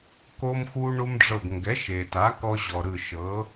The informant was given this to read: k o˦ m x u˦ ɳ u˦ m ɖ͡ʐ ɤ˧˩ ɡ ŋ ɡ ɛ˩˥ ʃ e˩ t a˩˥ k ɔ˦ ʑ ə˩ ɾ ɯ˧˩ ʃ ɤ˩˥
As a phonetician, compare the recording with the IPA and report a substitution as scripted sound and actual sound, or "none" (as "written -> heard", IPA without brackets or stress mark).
ə˩ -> ɔ˩